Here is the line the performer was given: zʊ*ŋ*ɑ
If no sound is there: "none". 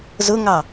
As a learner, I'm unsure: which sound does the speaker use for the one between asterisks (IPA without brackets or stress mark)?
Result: ŋ